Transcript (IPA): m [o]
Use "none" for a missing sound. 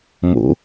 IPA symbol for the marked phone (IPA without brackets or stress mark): o̰